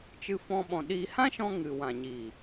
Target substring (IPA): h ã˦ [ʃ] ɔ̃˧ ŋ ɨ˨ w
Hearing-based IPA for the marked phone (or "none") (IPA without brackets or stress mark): ʃ